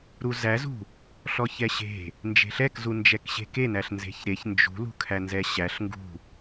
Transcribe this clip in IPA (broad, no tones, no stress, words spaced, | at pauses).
ɾuzæzṳ | ɬɔçɛɕe̤ | nd͡ʒe̤ɬɛkzu nd͡ʒɛkɕe̤kenæɬ nze̤çɾeç nd͡ʒṳlṳ kʰænzɛɕæɬ ŋɡṳ